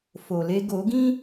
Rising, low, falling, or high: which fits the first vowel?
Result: low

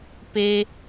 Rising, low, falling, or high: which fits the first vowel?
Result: high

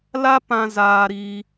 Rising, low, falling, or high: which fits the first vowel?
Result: high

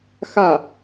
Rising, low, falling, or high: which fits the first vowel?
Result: falling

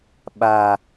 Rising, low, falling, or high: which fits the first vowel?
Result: low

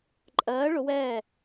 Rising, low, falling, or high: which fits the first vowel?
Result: rising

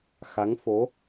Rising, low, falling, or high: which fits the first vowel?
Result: rising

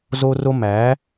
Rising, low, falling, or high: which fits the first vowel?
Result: high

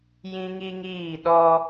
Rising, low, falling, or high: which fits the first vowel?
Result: high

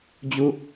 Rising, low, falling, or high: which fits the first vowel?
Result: low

